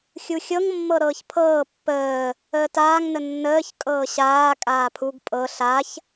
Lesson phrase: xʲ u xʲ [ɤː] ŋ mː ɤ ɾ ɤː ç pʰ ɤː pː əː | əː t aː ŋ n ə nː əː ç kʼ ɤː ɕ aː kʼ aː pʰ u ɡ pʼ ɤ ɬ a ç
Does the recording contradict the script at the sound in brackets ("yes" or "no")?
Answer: yes